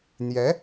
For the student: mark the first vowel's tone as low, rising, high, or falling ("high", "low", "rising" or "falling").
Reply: rising